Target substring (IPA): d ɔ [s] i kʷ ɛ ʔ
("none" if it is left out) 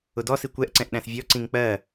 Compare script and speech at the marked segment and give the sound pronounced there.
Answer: s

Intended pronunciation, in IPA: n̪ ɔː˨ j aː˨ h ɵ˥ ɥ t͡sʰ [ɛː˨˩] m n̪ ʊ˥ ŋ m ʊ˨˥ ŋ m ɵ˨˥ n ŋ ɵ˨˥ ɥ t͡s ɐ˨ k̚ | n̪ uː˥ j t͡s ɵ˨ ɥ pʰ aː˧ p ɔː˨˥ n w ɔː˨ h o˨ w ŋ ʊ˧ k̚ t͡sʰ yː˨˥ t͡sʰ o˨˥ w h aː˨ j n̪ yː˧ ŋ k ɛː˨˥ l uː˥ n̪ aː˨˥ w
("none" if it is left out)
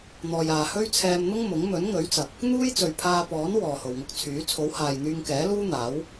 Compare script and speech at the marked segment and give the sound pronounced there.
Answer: ɛː˧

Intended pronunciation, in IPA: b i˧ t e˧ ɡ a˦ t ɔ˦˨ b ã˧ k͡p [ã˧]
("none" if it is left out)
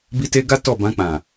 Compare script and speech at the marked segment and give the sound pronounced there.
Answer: ã˨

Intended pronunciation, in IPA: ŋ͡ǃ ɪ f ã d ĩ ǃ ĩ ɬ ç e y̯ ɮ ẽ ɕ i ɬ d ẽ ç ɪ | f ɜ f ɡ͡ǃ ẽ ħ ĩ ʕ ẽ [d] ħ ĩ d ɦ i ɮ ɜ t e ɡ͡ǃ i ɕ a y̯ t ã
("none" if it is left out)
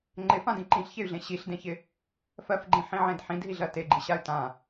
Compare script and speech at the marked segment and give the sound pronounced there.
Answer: d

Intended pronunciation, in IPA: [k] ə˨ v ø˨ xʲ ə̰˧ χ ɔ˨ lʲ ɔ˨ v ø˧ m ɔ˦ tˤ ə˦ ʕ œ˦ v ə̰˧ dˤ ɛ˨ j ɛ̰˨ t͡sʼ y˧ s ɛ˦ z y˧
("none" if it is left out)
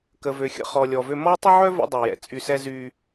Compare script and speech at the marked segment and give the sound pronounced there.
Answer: k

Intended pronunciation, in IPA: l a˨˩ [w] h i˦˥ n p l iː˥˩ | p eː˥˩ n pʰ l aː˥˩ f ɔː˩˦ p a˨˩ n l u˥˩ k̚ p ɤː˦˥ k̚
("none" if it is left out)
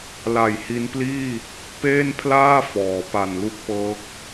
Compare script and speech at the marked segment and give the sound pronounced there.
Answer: j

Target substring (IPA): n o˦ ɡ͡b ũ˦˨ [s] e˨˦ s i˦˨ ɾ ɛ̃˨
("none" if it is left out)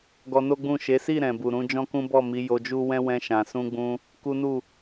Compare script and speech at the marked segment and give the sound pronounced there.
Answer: ʃ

